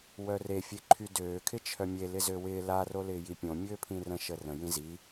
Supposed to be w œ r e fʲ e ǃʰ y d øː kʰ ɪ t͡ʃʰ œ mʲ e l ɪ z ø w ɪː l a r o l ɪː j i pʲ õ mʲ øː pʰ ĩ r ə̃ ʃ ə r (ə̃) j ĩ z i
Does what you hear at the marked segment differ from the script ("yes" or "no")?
no